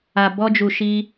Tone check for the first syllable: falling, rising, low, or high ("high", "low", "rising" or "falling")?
low